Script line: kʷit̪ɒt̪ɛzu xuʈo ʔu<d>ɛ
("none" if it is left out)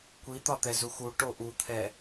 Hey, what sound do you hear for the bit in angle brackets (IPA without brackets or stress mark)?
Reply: t̪ʰ